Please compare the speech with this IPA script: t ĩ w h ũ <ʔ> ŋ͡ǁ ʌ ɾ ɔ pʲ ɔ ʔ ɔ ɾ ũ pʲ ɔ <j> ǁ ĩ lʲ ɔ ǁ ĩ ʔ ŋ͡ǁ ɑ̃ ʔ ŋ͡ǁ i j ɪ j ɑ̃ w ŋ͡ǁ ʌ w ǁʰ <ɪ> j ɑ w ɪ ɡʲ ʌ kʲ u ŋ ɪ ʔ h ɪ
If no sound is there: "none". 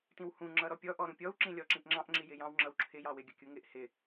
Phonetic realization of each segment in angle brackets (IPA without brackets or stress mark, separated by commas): none, w, ɪ